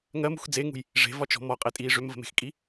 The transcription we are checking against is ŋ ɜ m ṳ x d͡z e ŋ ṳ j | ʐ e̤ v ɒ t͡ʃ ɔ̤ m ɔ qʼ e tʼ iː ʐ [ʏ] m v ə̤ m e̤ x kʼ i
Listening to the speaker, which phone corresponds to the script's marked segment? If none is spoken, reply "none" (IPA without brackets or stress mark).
ʏ